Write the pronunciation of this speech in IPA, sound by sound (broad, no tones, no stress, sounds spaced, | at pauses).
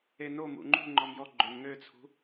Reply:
e n o m ṵ ŋ͡ǃ ṳ ŋ͡ǃ ɔ m j ɔ ɡ͡ǃ ø m ŋ ø t͡sʰ ṳ